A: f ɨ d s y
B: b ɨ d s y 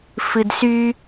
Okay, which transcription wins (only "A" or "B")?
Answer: A